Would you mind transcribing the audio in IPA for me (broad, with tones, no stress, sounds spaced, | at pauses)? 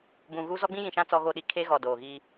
b ũ˨ ɣ u˦ z ɔ˦ ɡ͡b ĩ˦ j ĩ˨ ʃ ã˦ t͡s ɔ˦ ɣ o˦ ɗ i˨ kʰ eː˦ ɣ ɔ˨ d oː˨ ɣ iː˦